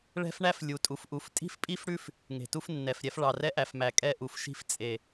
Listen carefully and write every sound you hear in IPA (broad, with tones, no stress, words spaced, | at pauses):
ɭɛ̤˦fɳæ˦f lʲu˨ tʼu˨fʔu˨˦f tʼi̤˦fpʼi˦fɽʉ˦f | ŋe̤˨tu˦fnːɛ˨fɾʲɛ˦f ɭɑ˨rɛ˦ʔæ˨fmæ˨ kʼɛ˦ʔu˨fʃi̤˦f t͡sʼe˨